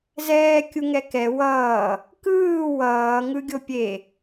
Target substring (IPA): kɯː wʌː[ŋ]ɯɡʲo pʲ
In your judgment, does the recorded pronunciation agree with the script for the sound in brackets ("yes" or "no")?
yes